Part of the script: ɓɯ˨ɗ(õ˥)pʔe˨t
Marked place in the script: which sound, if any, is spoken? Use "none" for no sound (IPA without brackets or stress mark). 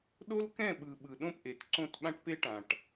õ˥˨